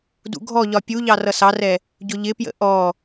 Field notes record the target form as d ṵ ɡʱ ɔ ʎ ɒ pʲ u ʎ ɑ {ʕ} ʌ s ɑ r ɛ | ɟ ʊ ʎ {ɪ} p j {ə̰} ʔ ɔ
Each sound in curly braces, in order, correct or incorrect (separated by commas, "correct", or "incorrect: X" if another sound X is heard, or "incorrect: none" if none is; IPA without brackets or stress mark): incorrect: r, correct, correct